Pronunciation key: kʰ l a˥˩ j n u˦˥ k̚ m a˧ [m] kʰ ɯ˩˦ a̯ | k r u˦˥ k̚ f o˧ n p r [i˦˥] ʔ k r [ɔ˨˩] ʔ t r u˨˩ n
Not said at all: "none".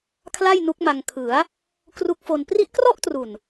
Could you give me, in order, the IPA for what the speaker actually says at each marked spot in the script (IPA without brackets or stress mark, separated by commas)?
ŋ, i˦˥, ɔ˥˩